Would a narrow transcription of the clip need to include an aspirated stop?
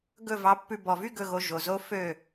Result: no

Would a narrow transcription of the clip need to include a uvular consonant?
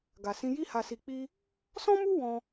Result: no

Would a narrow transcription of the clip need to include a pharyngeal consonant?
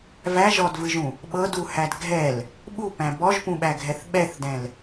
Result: no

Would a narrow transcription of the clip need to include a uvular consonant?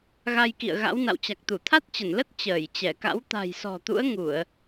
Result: no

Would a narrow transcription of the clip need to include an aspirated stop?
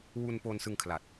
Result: yes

